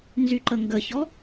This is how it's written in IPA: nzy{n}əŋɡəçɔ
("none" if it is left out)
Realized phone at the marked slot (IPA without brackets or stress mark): ǃ